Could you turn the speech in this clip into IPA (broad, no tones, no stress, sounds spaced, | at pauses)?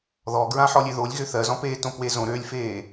ð ɔ ɡ ɹ ã ħ ɔ lʲ ø ð o lʲ ɣ ø θ ɜ z ɔ̃ p eː t õ p w e z õ ɾ ø lʲ f eː